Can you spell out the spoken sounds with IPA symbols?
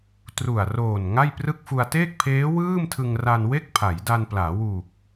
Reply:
t r u˨˩ a̯ r oː˨˩ n ŋ a˥˩ j p r ɯ˥˩ k̚ f u˧ a̯ t eː˥˩ k̚ pʰ eː˦˥ w ɯː˥˩ m tʰ ɯ˧ ŋ r a˧ n w e˥˩ k̚ pʰ a˩˦ j d a˧ n p l aː˩˦ w u˨˩ k̚

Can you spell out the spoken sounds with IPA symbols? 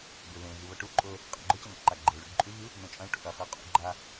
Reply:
b e β ẽ ɣ ɨ β ɐ ʈ u ǃʼ ɵ | qʼ a̰ ɡ͡ǃ ɵ c ɐ n o̰ ǃ a ɡ͡ǃ e ɭ ʉ ɖ ǃʼ ʉ ɣ ɨ | n õ t͡ʃʼ ɐ̃ ʈ o̰ ʔ ɐ χ e qʼ ṵ ɡ͡ǃ a

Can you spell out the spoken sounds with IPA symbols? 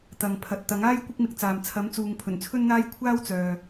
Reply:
t̪ ɐ˨ ŋ pʰ ɐ˨ t̚ t̪ ɐ˨˥ ŋ aː˥ j kʷ ɪ˥ k̚ m ɪ˧ k̚ t͡s aː˨ m t͡sʰ ɐ˨˥ m t͡s uː˨ ŋ pʰ ɵ˨˩ n t͡sʰ ɵ˥ n n̪ aː˥ j kʷʰ aː˥ w t͡s œː˨

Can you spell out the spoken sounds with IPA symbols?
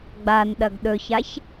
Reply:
ɡ͡b a n ɗ ɐ ɡ ɗ ɵ ç a ç

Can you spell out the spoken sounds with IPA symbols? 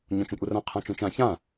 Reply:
ɲ õ t͡ʃ ũ kʷʼ ɪ r ã qʰ ã t͡ʃ ũ t͡ʃ ã ç ã

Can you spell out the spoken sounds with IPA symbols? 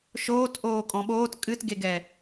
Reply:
ʃ oː t ʔ oː kʼ ɔ̃ ɓ oː t kʼ ɨ t ɡ e ɡ ɛ

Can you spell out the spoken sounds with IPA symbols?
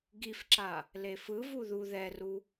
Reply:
ɡ i f ǁ a | l e f ɯ v u ð u ð ɛ r u

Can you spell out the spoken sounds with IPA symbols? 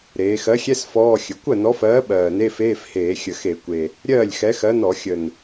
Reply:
ɾ eː˩˧ x ɜ˨˥ xʲ ɛ˧˥˧ s f ɔː˧˥˧ xʲ ɘ˩˧ kʷ ɜ˥˩ n ɔ˨˥ f ɜː˨˥ ɓ ɜː˨˩ n e˧˥˧ f eː˧˥˧ f h eː˧˩˧ xʲ ə˨˩ x e˧˩˧ kʷ e˨˩ | ɾʲ ɜː˥˩ lʲ x ɛ˨˥ x ɜ˨˥ n ɔ˧˩˧ xʲ ə˨˩ n

